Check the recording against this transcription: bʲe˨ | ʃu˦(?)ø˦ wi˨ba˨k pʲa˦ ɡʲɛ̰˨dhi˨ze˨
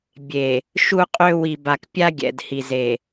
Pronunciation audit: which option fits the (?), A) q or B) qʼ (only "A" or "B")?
B